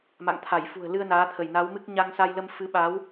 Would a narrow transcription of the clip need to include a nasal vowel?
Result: no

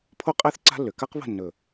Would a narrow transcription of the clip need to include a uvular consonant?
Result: yes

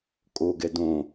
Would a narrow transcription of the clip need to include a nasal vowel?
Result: yes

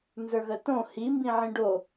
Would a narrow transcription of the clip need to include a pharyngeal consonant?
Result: yes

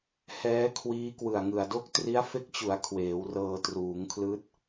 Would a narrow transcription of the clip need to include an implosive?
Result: no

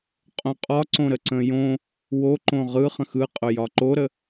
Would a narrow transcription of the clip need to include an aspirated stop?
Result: no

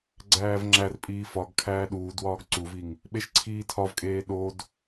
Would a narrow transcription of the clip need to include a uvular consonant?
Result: no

